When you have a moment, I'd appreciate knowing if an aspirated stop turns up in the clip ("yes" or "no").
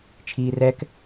yes